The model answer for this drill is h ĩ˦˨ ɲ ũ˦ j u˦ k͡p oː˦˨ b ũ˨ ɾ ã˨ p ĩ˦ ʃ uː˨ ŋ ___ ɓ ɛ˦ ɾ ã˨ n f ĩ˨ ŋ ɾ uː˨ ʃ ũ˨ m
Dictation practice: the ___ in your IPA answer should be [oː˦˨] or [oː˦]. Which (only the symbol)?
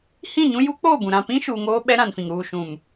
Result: oː˦